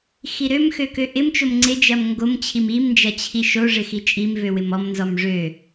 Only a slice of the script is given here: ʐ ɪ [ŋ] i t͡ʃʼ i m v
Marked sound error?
yes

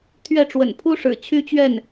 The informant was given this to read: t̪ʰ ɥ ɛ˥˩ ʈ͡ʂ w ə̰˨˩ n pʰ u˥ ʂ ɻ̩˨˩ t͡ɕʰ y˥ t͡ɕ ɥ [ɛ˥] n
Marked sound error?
yes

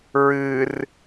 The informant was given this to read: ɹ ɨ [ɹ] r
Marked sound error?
yes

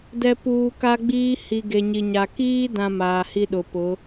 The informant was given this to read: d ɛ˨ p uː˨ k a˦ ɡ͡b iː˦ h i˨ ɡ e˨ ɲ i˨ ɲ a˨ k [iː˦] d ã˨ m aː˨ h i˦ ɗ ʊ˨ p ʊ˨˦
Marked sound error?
no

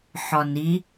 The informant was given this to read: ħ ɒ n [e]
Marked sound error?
yes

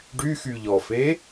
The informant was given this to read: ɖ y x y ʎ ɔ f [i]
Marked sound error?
yes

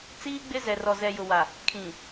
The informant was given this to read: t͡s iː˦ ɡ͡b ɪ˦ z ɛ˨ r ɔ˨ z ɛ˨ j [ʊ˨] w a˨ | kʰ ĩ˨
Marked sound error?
no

